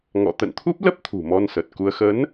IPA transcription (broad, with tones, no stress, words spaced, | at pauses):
ŋɔ̰˧˨ t̪ə̰˧˨nt̪ʰu˦˥p̚lə˦˥p̚ t̪ʰṳ˨˩ mɔ˧nsə˨˩t̚ku˧ə̯ xə˨˦n